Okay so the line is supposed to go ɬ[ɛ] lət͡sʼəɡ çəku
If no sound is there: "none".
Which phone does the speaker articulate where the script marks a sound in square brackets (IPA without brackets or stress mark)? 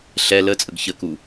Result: ɛ